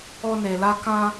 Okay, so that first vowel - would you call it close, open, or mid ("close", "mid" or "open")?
mid